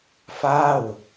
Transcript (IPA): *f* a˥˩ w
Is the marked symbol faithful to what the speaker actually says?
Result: yes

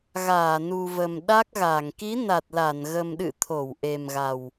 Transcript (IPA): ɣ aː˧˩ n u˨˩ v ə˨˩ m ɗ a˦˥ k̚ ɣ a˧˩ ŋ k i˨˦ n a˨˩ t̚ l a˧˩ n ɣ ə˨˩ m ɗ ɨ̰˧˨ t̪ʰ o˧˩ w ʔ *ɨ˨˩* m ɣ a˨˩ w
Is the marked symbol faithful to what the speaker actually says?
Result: no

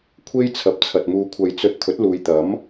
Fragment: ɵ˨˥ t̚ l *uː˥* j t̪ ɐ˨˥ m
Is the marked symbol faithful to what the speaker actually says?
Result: no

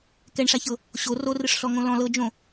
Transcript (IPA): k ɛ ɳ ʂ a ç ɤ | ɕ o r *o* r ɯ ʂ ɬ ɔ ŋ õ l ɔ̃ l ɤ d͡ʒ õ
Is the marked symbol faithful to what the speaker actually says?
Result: yes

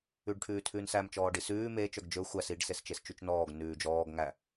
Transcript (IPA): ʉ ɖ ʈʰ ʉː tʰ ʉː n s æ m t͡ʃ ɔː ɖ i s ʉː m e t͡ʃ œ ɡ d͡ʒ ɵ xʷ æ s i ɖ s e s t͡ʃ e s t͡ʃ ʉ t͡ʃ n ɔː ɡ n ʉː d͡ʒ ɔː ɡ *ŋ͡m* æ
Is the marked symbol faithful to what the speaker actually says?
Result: no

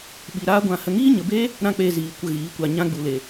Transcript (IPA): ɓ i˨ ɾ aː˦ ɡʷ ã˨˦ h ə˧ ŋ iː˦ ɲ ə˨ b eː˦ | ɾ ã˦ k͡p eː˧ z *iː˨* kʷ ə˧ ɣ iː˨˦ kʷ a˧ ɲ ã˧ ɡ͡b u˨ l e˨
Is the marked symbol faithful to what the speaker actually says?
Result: yes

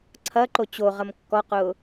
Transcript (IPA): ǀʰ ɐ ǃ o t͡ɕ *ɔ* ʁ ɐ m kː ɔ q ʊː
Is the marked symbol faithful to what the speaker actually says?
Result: no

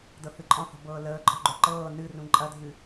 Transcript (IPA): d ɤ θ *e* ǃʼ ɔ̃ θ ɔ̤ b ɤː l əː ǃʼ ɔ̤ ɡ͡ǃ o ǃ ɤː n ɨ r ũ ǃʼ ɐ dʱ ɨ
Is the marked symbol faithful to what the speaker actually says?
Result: no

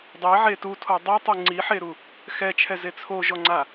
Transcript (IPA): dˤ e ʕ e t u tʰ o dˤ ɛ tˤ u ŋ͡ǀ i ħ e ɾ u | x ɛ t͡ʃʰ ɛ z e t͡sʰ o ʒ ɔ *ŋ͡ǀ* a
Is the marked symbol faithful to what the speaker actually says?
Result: yes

